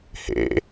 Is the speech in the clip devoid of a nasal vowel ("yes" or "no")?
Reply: yes